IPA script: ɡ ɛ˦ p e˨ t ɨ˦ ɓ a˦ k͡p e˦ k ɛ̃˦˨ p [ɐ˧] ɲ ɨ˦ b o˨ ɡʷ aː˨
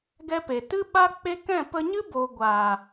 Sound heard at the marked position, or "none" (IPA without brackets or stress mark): ə˧